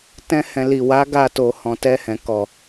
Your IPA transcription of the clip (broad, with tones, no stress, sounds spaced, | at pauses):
t ɛ̃˧ h ɛ̃˨ l i˨ w a˨˦ ɡ a˧ t o˨ h ɔ̃˨ t ɛ˧ h ɛ̃˨ k ɔ˨